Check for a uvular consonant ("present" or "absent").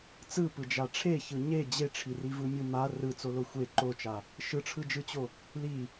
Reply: absent